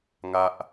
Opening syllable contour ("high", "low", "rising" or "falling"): high